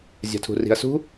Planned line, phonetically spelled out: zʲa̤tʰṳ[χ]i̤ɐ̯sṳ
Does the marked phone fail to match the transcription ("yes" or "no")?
yes